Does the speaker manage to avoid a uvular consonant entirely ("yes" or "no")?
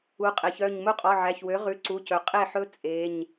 no